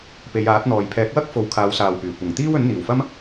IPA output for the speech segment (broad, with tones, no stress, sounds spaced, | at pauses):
p e˨˧ j aː˨˥ t̚ n̪ ɔː˨ j pʰ ɛː˨˥ k̚ w ɐ˥ k̚ f o˨˧ w kʰ aː˨˧ w s aː˨ w p yː˨˩ kʷ ɐ˨˩ ŋ t̪ iː˥ w ɵ˨˥ n n̪ iː˨˩ w f ɐ˥ m